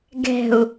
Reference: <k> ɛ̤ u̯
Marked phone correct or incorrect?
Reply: incorrect